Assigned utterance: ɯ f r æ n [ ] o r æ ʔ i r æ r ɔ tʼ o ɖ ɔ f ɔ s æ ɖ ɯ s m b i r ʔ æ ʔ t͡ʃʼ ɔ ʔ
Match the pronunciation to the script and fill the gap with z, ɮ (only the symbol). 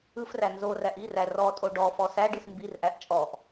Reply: z